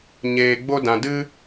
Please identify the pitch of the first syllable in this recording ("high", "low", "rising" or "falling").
low